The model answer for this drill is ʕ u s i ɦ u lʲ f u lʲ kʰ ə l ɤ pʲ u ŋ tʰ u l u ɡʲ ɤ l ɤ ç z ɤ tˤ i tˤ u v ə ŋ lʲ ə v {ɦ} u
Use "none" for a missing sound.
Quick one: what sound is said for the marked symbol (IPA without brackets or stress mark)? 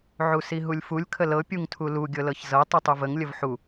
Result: ħ